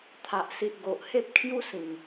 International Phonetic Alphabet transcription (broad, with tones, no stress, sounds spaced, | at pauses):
t̪ʰ a˨ ʔ s i˨ ʔ ɡ o˨ ʔ h e˦ p̚ kʰ j u˦ s ĩ˨˩ ŋ